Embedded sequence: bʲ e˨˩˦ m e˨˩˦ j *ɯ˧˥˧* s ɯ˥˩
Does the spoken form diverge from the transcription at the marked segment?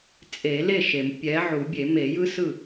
yes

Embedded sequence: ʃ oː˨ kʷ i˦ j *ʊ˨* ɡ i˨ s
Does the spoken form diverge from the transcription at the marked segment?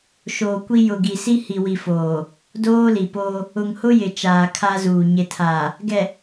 no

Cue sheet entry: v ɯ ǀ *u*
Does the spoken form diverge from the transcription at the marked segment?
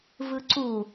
no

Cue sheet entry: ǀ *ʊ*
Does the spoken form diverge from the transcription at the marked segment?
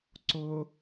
no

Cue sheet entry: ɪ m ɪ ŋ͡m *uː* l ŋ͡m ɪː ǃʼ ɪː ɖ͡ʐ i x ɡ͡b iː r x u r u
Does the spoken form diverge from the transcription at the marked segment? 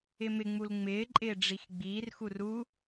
yes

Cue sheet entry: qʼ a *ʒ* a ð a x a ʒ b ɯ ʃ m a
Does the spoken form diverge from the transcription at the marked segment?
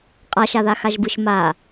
yes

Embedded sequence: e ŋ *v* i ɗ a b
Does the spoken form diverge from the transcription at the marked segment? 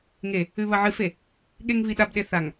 no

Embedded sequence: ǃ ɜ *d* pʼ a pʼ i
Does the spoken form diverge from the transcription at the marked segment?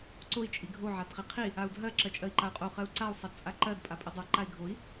no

